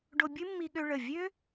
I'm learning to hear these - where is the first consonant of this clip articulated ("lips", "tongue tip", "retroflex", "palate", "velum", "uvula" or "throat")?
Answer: retroflex